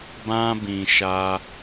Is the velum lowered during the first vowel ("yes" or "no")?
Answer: yes